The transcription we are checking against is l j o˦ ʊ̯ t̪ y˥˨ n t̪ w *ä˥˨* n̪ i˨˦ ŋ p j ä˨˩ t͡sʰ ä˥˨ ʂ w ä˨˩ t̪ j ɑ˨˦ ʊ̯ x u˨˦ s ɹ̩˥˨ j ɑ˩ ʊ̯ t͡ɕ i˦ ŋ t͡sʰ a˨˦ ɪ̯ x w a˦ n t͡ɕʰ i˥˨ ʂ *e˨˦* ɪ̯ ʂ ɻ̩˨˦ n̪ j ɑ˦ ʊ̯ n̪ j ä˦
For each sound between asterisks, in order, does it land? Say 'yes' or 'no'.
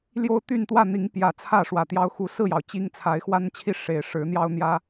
yes, no

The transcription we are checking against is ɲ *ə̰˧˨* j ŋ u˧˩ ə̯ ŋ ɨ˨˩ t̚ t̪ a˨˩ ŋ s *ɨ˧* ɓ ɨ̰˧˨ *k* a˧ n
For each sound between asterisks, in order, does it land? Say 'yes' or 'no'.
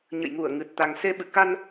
yes, no, yes

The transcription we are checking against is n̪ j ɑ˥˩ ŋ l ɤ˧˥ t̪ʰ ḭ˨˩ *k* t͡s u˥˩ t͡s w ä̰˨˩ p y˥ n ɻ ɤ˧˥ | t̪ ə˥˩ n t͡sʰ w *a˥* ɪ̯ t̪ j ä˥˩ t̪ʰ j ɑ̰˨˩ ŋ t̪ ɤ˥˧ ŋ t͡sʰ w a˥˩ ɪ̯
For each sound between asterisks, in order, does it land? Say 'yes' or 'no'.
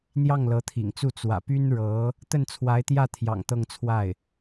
no, no

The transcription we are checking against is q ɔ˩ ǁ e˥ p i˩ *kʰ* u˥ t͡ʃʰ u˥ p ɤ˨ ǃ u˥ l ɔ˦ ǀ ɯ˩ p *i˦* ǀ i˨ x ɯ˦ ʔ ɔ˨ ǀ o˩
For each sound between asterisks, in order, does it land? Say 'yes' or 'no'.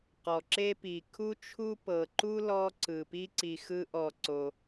yes, yes

